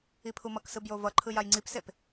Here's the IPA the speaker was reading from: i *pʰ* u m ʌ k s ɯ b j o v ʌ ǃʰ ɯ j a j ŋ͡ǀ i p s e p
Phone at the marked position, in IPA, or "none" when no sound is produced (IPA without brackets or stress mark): pʰ